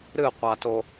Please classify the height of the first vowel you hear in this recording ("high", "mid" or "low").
high